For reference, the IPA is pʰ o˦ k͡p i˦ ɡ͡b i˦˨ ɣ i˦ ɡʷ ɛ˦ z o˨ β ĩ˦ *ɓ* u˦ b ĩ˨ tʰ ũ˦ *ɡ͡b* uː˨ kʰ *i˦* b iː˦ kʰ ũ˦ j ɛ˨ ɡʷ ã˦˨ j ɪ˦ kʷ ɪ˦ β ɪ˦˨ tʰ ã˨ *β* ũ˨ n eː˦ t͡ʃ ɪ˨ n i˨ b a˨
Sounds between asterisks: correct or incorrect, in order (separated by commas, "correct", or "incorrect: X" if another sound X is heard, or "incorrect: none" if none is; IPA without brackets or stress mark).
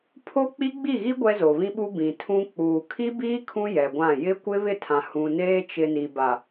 correct, incorrect: k͡p, correct, incorrect: h